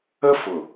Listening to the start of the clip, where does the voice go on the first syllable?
high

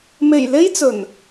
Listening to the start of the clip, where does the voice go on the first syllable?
low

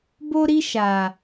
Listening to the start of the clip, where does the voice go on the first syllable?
high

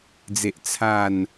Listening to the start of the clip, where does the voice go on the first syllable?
low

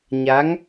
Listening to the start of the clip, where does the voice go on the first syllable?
rising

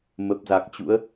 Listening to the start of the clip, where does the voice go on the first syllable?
low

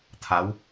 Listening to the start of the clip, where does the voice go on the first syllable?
rising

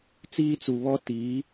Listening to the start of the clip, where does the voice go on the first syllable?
high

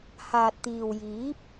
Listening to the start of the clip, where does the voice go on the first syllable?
low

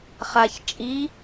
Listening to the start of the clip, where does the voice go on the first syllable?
low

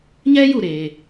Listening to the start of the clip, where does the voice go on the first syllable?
high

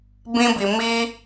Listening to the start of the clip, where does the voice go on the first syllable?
high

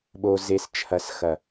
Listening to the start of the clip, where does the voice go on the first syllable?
low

